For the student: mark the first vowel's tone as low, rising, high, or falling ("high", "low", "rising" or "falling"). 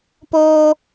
high